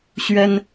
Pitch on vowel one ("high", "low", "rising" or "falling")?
high